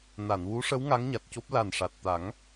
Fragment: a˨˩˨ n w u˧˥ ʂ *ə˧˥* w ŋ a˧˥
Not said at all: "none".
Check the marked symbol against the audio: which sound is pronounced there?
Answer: ə˧˥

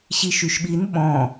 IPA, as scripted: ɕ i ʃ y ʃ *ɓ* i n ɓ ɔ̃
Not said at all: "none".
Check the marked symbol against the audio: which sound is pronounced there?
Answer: ɓ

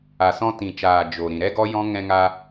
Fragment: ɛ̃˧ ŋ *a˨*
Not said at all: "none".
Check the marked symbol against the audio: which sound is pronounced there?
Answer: a˧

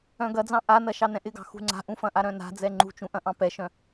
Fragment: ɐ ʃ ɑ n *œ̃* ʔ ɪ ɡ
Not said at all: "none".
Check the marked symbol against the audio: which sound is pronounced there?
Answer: ɛ̃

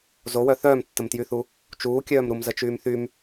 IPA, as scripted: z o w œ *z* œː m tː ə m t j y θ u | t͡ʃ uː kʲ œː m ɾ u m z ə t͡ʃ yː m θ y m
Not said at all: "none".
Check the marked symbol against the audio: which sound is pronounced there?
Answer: θ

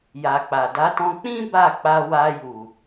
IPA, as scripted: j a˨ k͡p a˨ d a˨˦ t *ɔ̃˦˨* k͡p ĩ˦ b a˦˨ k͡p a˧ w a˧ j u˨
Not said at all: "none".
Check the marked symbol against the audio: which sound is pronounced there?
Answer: ɔ̃˧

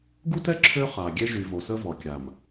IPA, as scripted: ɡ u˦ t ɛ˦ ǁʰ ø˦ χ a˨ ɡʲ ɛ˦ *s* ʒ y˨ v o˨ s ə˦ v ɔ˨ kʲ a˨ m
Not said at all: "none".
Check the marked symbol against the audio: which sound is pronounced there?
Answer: none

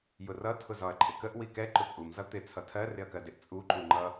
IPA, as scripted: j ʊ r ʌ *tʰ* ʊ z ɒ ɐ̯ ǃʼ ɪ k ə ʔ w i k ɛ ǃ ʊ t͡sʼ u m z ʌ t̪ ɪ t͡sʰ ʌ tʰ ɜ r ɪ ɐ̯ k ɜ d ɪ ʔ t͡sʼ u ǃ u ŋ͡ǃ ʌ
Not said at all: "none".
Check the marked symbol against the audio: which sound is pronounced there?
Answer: tʰ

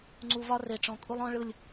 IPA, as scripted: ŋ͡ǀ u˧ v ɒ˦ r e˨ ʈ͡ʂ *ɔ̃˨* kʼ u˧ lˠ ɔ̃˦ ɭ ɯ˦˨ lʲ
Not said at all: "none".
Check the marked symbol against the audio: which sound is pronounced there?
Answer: ɔ̃˨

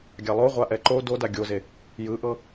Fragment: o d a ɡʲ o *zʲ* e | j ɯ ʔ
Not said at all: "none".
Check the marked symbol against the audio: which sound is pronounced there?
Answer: z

